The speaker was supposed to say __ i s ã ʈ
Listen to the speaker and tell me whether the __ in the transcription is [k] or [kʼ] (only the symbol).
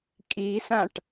kʼ